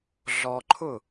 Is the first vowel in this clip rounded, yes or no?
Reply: yes